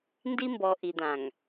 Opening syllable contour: high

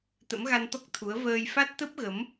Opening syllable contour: rising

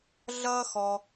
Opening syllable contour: high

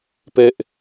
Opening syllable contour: high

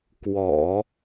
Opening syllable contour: low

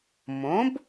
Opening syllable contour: rising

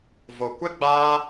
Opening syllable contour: low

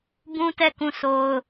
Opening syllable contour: high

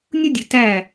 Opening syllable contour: high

